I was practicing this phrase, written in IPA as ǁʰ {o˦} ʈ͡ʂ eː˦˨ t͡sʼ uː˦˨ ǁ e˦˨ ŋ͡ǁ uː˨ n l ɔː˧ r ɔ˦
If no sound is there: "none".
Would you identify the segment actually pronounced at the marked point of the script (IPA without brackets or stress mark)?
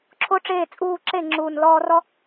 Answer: o˦